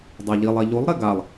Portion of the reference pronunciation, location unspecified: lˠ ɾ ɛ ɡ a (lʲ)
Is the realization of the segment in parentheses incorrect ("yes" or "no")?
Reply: yes